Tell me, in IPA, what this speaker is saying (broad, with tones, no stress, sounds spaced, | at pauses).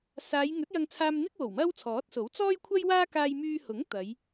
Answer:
s aː˨˧ j ŋ ɵ˨˥ t̚ j ɐ˧ ŋ t͡sʰ aː˧ m n̪ ɪ˥ k̚ w o˨˩ w m ɐ˥ w t͡sʰ ɔː˨˥ t̚ s o˨˥ w t͡s ɔː˥ j kʷʰ ɐ˥ j w aː˥ k aː˧ j m yː˧ h ʊ˨˥ ŋ t̪ ɐ˨˧ j